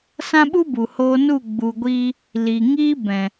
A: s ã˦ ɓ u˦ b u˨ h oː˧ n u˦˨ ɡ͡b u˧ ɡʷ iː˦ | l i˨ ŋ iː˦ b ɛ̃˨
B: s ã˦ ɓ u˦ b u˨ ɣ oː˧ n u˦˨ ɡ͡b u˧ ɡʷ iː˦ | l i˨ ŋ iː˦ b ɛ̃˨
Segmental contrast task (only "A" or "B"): A